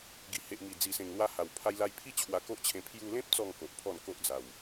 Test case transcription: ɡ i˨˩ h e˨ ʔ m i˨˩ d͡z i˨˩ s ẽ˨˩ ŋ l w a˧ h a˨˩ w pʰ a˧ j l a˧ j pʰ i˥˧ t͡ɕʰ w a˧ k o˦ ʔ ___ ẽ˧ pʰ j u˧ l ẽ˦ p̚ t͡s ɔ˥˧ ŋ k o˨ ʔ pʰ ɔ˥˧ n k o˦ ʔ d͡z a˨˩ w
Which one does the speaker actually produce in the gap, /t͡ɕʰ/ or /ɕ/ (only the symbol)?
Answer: t͡ɕʰ